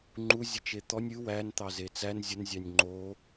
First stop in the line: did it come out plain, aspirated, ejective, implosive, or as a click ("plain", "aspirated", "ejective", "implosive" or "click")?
click